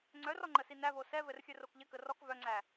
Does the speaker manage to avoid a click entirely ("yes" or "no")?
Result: no